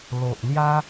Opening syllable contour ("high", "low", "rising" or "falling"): low